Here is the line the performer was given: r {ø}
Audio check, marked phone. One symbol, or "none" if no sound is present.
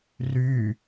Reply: y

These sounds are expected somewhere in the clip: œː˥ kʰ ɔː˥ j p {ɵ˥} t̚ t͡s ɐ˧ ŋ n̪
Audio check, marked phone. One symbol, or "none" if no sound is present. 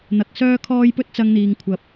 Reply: ɵ˥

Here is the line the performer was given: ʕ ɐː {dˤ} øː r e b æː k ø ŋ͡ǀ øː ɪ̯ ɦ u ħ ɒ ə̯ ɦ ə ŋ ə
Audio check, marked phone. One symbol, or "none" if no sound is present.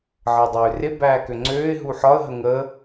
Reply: dˤ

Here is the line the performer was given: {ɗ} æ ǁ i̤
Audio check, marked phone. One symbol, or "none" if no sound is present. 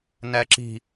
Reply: n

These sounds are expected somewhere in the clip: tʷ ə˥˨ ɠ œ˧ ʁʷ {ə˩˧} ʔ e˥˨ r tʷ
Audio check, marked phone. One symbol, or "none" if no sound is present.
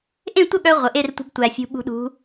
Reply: ə˩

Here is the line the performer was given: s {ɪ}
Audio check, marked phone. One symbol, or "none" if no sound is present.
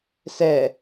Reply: ɛ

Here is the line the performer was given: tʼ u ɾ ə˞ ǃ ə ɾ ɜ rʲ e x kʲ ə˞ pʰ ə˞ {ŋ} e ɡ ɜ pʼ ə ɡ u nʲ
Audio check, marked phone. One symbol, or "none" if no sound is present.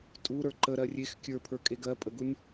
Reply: kʼ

